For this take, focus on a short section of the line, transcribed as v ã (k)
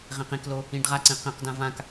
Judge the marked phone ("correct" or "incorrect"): correct